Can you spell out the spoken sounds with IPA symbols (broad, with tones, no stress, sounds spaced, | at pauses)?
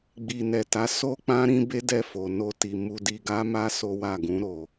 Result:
ɡ͡b i˨ n ɛ˨ t a˨˦ s o˦ k͡p ã˦ ɾ ĩ˦ b e˦ d ɛ˦˨ f o˨ n o˧ t i˨ m u˧ d i˧ ɡ a˦ m a˦ s o˦ w a˦˨ ɡ ũ˨˦ ɾ o˧